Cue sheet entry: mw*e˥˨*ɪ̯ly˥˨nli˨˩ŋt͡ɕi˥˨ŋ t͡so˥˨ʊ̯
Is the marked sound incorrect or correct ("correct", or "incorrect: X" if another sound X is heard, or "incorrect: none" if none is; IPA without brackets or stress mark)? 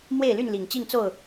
correct